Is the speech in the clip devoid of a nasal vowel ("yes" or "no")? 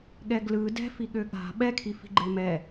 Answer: yes